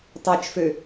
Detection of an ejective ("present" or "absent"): absent